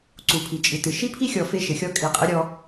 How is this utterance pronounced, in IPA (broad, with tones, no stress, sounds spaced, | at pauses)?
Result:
ǀ u˨ pʰ i˨ t͡ʃʼ ɨ˨ t ɨ˨ ʃ i˦ pʰ i˦ xʲ ɔ˨ f e˦ ʃ ɘ˨˦ xʲ ɔ˦ kʼ i˨ qʼ ɘ˦ ɾʲ ɔ˦